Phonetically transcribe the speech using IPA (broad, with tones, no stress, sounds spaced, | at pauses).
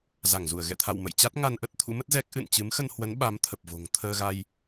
z a˧˩ ŋ z u˧˩ ə̯ ɣ ɛ̰˧˨ t̪ʰ a̰˧˨ w m ə̰˧˨ j t͡ɕ a˦˥ t̚ ŋ a˧ n ʔ ə˦˥ t̚ t̪ʰ ṵ˧˥ m ə˦˥ t̚ z ɛ˦˥ k̚ ʔ ɨ̰˧˨ n t͡ɕ ɨ˨˦ m x ə˧ n h w ə˨˦ n ɓ a˨˦ m t̪ʰ ə˨˩ p̚ v o̤˨˩ ŋ t̪ʰ əː˧ ɣ a˧ j